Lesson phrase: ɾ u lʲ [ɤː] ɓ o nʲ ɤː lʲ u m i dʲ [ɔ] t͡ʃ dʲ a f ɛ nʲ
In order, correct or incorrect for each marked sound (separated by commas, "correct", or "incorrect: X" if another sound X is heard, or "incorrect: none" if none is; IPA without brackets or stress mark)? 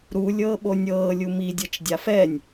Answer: correct, incorrect: ɤ